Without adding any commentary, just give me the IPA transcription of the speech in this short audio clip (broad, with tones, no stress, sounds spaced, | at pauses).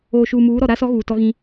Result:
oː˨ ʃ uː˨ m uː˨˦ ɾ ɔ˨ ɾ a˦ s ɔ˦ ɣ uː˨ t ɔ˦ ɣ ĩ˦